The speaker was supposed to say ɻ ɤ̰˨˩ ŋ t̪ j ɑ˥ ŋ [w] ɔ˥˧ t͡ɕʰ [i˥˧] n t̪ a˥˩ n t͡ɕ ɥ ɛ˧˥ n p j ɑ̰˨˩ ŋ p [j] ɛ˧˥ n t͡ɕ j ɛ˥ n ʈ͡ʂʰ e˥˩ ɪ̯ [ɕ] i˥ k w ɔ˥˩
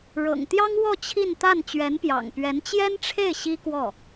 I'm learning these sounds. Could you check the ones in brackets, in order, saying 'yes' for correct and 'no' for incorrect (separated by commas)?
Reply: yes, yes, no, yes